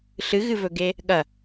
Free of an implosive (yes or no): no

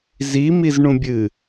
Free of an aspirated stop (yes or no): yes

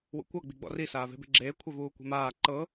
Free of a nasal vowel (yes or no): yes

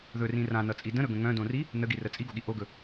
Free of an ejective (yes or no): no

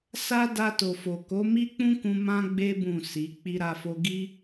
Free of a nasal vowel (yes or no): no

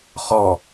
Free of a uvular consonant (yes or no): no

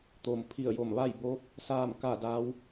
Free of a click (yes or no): yes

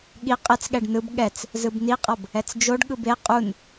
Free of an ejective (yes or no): no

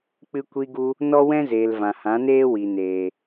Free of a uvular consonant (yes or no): yes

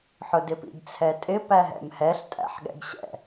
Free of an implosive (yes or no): no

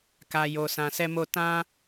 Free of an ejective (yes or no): yes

